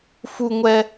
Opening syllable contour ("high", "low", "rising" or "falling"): high